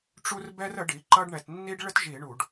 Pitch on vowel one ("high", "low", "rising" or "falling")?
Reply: high